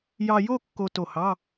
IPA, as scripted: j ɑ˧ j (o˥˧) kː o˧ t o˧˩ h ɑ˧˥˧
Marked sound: correct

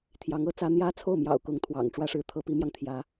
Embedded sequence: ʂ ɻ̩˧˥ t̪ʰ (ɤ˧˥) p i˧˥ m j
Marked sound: correct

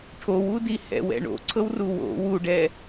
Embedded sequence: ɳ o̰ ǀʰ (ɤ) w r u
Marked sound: correct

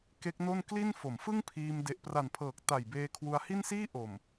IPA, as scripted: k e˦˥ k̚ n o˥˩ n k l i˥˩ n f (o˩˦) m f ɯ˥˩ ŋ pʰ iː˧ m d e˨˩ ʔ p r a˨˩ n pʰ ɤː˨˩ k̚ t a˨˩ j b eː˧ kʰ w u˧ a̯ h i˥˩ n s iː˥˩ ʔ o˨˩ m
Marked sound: correct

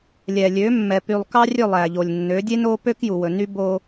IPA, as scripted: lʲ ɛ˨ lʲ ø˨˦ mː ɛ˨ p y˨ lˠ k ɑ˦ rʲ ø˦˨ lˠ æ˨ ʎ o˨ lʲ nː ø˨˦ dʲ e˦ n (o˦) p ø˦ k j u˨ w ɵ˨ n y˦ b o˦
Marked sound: correct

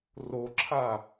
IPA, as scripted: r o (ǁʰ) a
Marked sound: correct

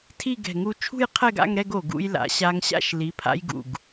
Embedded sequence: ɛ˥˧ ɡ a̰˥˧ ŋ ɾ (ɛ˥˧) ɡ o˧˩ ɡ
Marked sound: correct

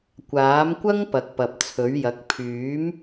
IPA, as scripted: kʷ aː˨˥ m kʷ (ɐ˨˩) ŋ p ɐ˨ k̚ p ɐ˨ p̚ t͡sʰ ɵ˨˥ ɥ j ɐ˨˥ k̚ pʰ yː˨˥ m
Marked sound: incorrect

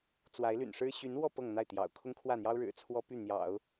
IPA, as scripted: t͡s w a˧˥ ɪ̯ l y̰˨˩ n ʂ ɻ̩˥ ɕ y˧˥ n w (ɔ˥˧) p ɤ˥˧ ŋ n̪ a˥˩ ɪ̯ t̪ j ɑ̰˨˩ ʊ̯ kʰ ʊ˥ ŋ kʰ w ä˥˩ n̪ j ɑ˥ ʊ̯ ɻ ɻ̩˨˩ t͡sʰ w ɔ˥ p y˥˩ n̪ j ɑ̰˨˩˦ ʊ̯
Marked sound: correct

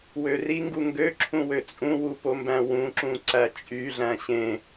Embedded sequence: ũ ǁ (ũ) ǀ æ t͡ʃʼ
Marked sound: correct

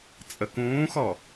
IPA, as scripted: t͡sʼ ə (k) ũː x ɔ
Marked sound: correct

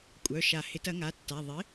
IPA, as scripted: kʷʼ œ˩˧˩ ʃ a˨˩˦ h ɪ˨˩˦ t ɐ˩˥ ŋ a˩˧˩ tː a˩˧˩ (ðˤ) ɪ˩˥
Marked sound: correct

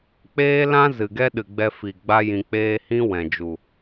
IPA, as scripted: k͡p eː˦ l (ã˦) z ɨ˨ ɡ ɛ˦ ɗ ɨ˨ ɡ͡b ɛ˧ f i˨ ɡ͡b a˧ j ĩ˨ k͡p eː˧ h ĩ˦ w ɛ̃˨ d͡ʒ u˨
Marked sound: correct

